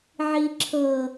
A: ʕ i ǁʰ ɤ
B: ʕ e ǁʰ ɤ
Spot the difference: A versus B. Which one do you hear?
A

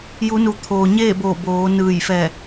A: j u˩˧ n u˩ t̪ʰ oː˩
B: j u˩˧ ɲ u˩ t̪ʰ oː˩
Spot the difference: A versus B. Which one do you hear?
A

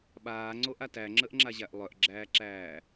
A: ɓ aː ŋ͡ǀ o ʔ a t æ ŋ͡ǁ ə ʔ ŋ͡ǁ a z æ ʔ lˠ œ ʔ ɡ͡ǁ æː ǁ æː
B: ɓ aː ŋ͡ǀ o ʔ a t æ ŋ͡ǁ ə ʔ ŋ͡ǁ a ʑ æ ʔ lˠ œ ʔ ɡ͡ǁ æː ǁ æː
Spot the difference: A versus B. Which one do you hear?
B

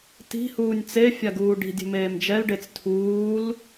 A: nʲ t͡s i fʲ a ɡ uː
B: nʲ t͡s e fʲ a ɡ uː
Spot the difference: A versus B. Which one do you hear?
B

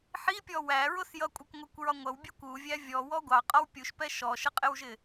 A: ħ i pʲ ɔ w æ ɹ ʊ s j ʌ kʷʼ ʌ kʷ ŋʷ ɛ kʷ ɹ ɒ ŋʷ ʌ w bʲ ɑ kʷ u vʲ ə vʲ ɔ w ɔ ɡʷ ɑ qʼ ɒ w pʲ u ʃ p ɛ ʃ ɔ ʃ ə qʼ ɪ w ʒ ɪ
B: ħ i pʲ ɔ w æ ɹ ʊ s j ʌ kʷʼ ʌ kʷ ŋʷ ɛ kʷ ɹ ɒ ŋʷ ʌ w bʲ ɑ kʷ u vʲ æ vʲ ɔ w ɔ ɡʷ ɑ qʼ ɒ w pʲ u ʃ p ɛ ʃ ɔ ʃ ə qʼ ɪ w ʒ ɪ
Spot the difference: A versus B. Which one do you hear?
B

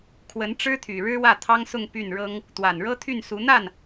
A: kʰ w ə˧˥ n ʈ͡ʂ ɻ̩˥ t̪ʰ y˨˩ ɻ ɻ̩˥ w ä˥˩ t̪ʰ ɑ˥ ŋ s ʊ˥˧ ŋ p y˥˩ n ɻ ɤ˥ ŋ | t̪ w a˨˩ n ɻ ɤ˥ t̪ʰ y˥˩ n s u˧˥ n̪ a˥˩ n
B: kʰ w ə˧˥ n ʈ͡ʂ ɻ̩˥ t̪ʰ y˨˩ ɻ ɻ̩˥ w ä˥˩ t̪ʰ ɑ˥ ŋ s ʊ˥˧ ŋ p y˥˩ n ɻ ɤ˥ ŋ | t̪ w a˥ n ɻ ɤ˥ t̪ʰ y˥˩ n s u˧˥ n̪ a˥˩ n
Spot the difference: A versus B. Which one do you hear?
A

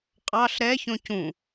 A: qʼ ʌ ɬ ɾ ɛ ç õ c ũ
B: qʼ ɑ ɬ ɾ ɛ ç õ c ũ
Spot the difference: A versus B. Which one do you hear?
B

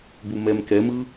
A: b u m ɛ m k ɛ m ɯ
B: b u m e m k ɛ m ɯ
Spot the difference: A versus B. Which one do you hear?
A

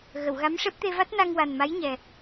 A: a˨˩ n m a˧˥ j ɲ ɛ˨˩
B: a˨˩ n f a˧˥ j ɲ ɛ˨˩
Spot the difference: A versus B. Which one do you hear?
A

